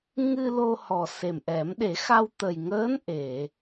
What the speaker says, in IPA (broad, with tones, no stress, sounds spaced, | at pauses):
ŋ ɨ˧ l o˧ h ɔ˨˩ s e˨˩ m ʔ ɛ˨˩˦ m ɗ e˨˩˦ x a˧ w t̪ ə˨˩ j ŋ əː˧˥ n ʔ e˨˩˨